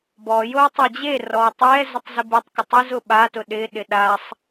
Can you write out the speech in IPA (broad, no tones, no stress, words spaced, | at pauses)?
bɔjow tˤad͡ʑerɔw tˤɛ zɪtˤzɪbitˤkʊ tˤizʊ ɓatʊ ɗɪɗɪ ɗasˤ